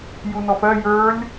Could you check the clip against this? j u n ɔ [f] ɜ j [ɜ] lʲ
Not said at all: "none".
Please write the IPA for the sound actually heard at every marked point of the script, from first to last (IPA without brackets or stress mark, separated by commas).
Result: f, ə˞